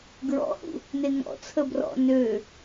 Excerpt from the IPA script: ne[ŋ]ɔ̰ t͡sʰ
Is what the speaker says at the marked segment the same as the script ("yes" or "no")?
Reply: yes